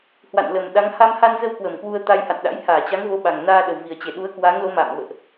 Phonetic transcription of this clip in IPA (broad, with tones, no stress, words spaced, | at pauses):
hwa̰˧˨nlə˨˩mɗa˨˦ŋ ha˧mha˧nzə˧w kwə˧˩mkwu˧ə̯ t̪a˧jha̰˧˨nɗa̰˧˥j haː˧˩t͡ɕa˨˦ŋvo˨˦ ɓa˨˩ŋ naː˧ɗə˨˩wvi˨˩ə̯ t͡ɕe˧˩ɗu˨˦ə̯kwa˨˦ŋlo˨˦ ma̰ː˧˨mvə̰ː˧˨ʔ